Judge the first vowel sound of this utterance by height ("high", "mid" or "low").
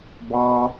low